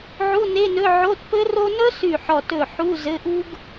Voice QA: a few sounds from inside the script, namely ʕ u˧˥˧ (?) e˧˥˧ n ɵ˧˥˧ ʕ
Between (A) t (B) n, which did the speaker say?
B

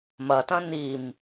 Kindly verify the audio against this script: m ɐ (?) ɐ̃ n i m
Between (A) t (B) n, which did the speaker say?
A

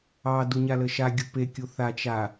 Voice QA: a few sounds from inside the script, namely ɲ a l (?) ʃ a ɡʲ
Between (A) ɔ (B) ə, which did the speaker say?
B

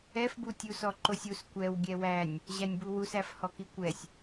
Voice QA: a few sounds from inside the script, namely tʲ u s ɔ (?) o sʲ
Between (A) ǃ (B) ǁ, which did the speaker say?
A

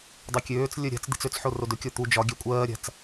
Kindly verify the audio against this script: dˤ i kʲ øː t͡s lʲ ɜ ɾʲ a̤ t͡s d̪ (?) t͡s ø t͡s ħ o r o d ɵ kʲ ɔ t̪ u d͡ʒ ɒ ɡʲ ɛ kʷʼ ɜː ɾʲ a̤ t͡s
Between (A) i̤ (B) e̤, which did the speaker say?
A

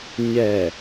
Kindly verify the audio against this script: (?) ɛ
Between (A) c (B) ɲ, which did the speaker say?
B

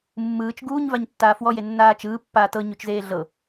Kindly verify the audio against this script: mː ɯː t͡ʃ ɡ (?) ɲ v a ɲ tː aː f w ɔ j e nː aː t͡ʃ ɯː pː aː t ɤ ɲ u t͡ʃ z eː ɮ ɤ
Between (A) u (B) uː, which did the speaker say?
B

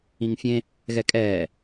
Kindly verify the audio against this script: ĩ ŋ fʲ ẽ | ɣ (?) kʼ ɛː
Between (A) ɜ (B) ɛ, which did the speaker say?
B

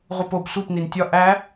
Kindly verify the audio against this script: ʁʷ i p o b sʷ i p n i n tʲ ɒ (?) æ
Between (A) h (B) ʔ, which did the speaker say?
B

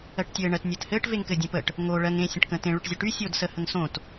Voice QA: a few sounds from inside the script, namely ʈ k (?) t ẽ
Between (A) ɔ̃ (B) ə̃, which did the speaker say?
B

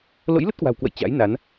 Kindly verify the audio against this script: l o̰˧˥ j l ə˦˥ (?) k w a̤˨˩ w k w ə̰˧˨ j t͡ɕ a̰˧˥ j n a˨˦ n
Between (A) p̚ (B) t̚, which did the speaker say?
B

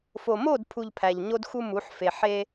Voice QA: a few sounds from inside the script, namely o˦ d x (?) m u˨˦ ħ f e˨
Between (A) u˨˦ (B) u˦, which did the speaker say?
B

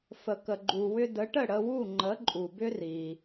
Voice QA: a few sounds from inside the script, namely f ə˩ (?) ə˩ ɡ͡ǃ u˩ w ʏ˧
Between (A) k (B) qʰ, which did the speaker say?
A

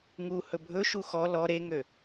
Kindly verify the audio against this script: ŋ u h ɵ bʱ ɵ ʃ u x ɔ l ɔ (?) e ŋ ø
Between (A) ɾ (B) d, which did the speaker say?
A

